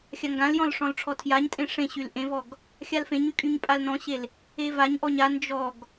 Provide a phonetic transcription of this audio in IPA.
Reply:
xʲ a ŋ ɡ ã l j ɔ̃ l ʂ ɔ̃ l ʈ͡ʂʰ ɔ tʰ j a ɲ tʼ ẽ ʂ ẽ ɕ y l ʔ ẽ v ɔ ɡ | xʲ a l f ẽ ɲ y kʼ y ɲ pʼ a l n ɔ̃ ɕ e l | e v a ɲ ʔ ɔ ɲ a n d͡ʒ ɔ ɡ

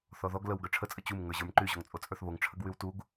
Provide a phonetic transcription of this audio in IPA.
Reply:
θ ɔ ð ɔ ɡ l ə w ɡ ə˞ ʈ͡ʂʰ ə t͡sʼ ə t͡ɕ u m ŋ ə˞ ʑ ə˞ m ǃ y ʑ ɔ ŋ t͡sʼ o t͡sʼ ə˞ θ β o ŋ ʈ͡ʂʰ ə ɡ w y w t u ɡ

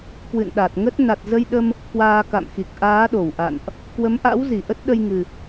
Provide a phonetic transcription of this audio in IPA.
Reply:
k w ɨ̰˧˨ n ɗ a˨˩ t̚ ŋ ə˦˥ t̚ n a˨˩ t̚ z ə˧ j ɗ ə˧ m | k w aː˧ k a̰˧˨ m x i˨˩ k̚ ʔ aː˨˦ ɗ o˧˩ w ʔ a̰˧˨ n ʔ | k w ə˨˦ m ʔ a̰˧˥ w z i˧˩ ʔ ə˦˥ t̚ ɗ ə˧ j ŋ ɨ˨˩

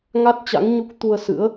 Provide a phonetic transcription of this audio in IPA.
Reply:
ŋ a˦˥ t̚ t͡ɕ a̰˧˥ ŋ ɲ u˦˥ k̚ t̪ u˧ ə̯ s ɨ̰˧˥ ə̯

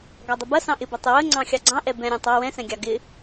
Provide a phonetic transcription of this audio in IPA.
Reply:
ɡ ɑ dˤ ə b ɐ s ɑ̃ ʔ ɪ b ɐ tˤ ɪ w ə ŋ͡ǀ ɑ̃ xʲ ɑ ɡ͡ǀ ɑ̃ ʔ ɛ b ɛ̃ ɾʲ ẽ tˤ ɑ w ɛ̃ s ɛ̃ ɡʲ ɑ ɡ ɪ

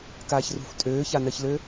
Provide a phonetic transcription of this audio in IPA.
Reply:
k aː ç r ṳ f tʼ øː ç a n ɜ ç l ø

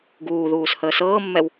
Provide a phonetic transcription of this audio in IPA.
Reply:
ɡ uː ð uː s h əː s ɤː mː ɛ w

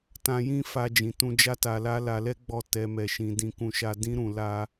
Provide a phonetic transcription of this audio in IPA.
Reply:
t ã˧ j ĩ˦ f a˧ d͡ʒ ĩ˨ t ũ˧ d͡ʒ a˦ t a˧ l a˦ l a˧ l ɛ˦ ɡ͡b ɔ˦˨ t ɛ˧ m ɛ˧ ʃ ĩ˧ d ĩ˧ k ũ˧ ʃ a˧ d ĩ˦ ɾ ũ˧ l a˦

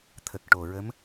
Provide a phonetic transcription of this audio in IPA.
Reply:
t̪ʰ ə˨˩ k̚ ʈ o˨˩ ɹ ə˧˥ m

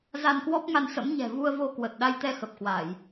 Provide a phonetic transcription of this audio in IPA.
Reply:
z a˧ n k w ɔ˦˥ p̚ ŋ a˧ n s ə̰˧˥ m ɲ ɛ̤˨˩ v u˧ ə̯ v o˧ k w ə˨˩ t̚ ɗ a˧ j t̪ ɛ˧ x ə˨˩ p̚ k w a˧˩˨ j

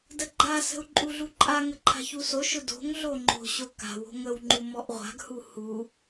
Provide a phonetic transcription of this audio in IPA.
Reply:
d ə ɡ͡ǃ a s ə̤ u̯ ǃʼ u ɮ u ǃʼ a ŋ ə ǃʰ a̤ ç u s o ʃ ʊ d o̤ ŋ ɮ o ŋ͡ǃ o̤ ɕ o k a̤ w o̤ ŋ ə w ŋ͡ǃ u m ɔ ʔ ʁʷ a̤ ɡ h u h u

